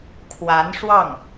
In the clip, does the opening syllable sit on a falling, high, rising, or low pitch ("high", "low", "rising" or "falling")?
rising